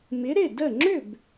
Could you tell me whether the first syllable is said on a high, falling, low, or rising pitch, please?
rising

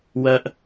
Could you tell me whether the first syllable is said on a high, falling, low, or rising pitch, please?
high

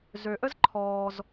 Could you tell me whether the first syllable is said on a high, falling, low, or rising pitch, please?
low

